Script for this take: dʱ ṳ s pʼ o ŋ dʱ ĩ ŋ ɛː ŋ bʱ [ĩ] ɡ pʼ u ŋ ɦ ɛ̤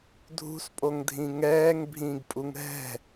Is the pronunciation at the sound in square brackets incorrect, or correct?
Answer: incorrect